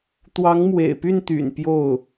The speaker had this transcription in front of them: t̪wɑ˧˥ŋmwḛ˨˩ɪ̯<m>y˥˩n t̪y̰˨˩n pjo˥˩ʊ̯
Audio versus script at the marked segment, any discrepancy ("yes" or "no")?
yes